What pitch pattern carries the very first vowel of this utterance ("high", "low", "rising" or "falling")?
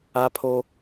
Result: high